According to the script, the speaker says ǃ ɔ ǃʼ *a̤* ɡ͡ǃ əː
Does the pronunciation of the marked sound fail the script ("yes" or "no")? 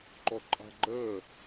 no